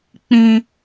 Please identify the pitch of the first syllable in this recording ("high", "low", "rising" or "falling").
high